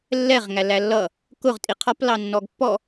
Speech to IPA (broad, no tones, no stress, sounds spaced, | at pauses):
lː ɛ ʁ ŋ æ l æ lː ʌ | k ʊ ʁ tʼ i qʰ ɒ p l ɑ nː ɔ ɡ pː ɔ